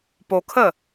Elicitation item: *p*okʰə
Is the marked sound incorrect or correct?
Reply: correct